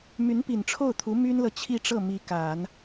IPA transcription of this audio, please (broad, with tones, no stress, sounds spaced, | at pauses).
m y˧˥ n p i˨˩ n ʈ͡ʂʰ o˥˩ ʊ̯ t̪ʰ u˧˥ m y˥ n l ɤ˨ t͡ɕʰ i˥˧ ʈ͡ʂ ɤ˥˩ m i˧˥ k a˨˩˦ n